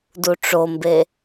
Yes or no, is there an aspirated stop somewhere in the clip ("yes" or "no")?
no